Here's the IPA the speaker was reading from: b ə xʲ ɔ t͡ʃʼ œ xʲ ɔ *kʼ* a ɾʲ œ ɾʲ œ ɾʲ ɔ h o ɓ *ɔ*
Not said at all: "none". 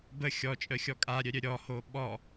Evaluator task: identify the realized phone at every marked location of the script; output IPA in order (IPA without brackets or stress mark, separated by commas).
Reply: kʼ, ɔ